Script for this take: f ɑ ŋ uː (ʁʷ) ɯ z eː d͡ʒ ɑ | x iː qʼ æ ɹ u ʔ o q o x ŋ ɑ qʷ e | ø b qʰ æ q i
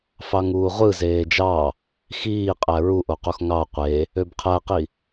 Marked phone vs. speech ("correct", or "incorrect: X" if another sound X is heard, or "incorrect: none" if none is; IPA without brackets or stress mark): correct